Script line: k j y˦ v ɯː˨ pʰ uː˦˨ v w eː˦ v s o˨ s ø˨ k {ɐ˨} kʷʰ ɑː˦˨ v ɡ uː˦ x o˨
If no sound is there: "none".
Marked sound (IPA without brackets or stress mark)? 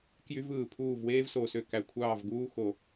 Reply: æ˨